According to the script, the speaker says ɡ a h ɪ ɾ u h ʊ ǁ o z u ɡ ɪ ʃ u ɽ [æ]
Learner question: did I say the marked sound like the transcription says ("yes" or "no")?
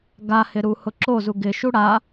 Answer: no